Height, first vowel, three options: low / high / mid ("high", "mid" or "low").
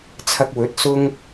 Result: low